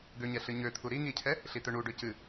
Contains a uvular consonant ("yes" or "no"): no